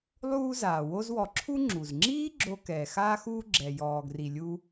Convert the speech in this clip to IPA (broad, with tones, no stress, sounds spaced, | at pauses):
lˠ uː˦ z aː˩ w o˦ z w ɔ˨ ǁʰ u˥ ŋ͡ǁ u˩ z ŋ͡ǁ iː˥ ɡ͡ǁ o˨ k ɛː˩ x aː˦ x uː˦ ɡ͡ǁ ɛ˩ j ɔː˩ ɡ r i˩ lʲ u˨